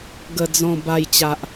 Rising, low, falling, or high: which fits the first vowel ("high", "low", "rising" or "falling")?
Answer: high